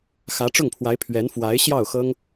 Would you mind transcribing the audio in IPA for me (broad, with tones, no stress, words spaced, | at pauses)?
xä˧˥ʈ͡ʂʊ˥˩ŋpʰwa˧˥ɪ̯ pʰɥɛ˧˥nfwa˧˥ɪ̯ɕjɑ˥˩ʊ̯xɤ˥ŋ